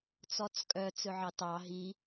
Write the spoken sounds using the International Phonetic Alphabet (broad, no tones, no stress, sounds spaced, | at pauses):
t͡s ɔ t͡s kʼ œ t͡s ɵ ʕ ɑ t ɑ ɦ i